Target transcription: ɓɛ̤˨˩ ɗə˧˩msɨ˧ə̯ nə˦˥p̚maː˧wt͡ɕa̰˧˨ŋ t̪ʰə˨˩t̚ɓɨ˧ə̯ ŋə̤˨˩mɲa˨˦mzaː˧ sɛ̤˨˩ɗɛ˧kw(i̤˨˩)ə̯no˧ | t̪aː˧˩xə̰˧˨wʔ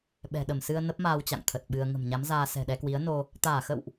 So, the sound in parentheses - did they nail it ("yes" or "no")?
no